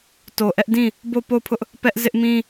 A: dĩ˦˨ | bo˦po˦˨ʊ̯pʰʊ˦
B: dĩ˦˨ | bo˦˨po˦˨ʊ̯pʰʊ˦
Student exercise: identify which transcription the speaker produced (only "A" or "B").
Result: B